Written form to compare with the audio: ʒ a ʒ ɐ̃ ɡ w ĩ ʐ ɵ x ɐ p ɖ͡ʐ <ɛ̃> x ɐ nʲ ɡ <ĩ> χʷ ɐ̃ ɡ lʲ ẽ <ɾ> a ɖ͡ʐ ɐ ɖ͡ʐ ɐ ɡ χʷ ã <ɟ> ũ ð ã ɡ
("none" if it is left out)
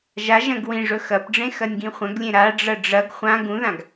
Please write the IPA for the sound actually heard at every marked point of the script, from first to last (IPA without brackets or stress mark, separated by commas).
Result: ẽ, ĩ, ɾ, ɡ